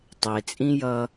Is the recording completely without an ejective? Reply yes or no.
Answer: no